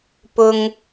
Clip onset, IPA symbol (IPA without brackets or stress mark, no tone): p